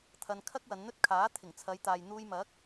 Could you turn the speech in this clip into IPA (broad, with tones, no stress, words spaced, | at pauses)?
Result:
t̪ʰɐ˧nkʰɐ˥k̚wɐ˨˧nn̪ɵ˥t̚ kʰaː˨˥ t̪ʰɪ˨˩ŋt͡sʰɐ˨˧jt̪aː˨j n̪uː˧jmɐ˨˥k̚